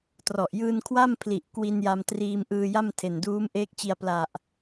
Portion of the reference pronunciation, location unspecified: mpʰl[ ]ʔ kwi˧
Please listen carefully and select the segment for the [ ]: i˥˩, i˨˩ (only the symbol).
i˨˩